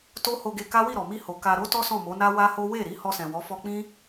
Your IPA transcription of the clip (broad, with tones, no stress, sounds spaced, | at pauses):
t o˦ h o˧ ɡ e˧ k a˦ w i˦˨ ɾ ɔ˨ m i˧ h o˨ k a˧ ɾ o˦ t ɔ˦ s ɔ̃˦˨ m o˨˦ n a˦ w a˦ h o˦ w e˦˨ ɾ i˨˦ h ɔ˧ s ɛ̃˨ w ɔ˨˦ f ɔ˧ k͡p ĩ˦